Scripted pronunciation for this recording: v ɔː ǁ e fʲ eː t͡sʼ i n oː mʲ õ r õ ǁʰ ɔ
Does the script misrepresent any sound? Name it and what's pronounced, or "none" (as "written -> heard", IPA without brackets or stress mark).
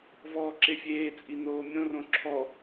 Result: none